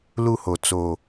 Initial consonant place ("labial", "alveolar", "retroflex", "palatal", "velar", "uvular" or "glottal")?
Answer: alveolar